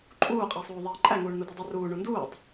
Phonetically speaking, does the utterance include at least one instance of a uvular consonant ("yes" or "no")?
yes